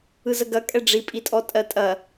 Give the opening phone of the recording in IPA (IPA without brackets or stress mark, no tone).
ɯ